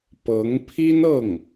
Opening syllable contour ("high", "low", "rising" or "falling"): rising